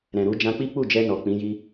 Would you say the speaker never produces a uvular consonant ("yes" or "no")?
yes